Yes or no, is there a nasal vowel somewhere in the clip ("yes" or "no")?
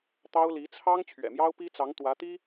no